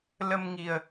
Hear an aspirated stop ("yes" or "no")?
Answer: no